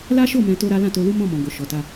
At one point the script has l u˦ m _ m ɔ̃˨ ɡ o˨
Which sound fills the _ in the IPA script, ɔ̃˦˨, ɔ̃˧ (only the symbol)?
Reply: ɔ̃˦˨